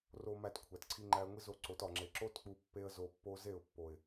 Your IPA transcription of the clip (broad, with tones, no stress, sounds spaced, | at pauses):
r o˧ m æ˧ t kʷʰ æ˨ t ǀʰ i˧ ŋ͡ǃ æ˧ ə̯ ŋʷ i˦ z o˦˨ ǀ o˨˦ t ɒ˨ ŋ͡ǁ e˨ ǁ o˦ t k͡p u˧ pː e˦ ə̯ z o˧ pː o˦ z e˦˨ ʊ̯ pː o˨ ɪ̯